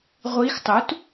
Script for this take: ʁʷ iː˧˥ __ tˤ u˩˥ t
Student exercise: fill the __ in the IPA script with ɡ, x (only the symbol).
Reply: x